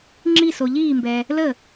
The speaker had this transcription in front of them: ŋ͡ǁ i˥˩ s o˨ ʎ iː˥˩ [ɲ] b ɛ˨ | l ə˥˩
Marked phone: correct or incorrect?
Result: incorrect